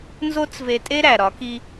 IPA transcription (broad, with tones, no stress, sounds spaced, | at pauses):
n z o˥ t͡s v e˧ tʼ e˥ ɾ æ˩ ɾ ɒ˩˧ k i˧